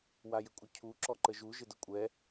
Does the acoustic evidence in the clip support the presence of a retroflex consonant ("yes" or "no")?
no